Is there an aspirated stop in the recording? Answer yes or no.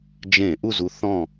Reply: no